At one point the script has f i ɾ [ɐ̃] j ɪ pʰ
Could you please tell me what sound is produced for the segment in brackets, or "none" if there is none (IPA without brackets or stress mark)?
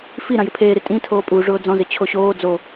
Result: ã